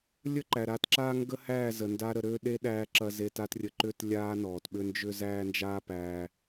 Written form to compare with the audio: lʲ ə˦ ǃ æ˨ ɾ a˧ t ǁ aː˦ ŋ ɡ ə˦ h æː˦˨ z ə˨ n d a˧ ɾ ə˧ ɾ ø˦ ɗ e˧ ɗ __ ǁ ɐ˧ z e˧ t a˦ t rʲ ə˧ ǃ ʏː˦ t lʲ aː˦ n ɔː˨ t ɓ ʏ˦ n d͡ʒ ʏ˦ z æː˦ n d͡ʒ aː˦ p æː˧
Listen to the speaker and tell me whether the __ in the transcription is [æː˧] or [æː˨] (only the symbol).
æː˧